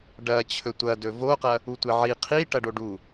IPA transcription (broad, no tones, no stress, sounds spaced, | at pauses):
ɖ ɐ t͡ɕʰ ɵ tʷ ɐ d ɵ v o q ɐ | u tʷ e ʕ i qʰ i ʈ ɐ ɖ o ɖ u